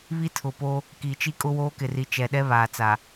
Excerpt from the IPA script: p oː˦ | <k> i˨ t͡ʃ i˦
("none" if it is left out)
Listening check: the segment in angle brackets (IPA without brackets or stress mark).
k